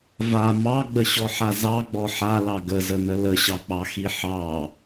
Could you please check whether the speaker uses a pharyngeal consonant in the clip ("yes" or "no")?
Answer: yes